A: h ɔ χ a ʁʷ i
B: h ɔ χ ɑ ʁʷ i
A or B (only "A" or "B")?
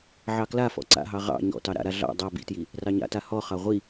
B